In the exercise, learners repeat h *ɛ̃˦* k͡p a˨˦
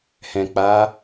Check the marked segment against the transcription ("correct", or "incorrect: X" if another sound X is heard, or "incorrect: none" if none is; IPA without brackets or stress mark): incorrect: ɛ̃˨